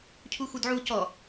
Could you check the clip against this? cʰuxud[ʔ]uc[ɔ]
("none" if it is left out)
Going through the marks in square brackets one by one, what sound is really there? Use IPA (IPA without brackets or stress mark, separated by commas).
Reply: ʕ, ɔ